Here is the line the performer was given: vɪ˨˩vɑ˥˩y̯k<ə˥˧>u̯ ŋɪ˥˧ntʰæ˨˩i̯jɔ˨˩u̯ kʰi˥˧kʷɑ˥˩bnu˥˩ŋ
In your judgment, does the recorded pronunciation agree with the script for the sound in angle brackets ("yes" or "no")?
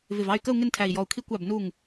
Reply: yes